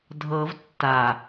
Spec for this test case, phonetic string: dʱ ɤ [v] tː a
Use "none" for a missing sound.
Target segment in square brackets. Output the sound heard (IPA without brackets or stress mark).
v